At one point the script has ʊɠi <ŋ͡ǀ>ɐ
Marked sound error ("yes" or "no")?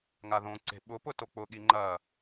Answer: yes